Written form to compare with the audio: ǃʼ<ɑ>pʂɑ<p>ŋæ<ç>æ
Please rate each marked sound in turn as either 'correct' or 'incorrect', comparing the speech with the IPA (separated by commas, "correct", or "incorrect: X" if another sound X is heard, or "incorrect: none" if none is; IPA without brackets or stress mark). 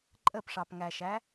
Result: incorrect: ə, correct, incorrect: ʃ